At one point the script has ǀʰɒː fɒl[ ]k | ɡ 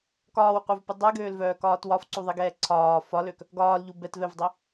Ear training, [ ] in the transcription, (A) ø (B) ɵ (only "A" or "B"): A